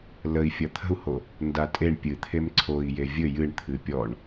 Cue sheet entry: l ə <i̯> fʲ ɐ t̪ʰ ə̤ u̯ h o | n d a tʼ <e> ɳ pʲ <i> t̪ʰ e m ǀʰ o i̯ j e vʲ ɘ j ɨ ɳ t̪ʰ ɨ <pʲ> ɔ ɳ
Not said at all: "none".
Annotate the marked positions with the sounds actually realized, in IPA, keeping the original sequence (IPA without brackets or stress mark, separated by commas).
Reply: i̯, e, ɨ, pʲ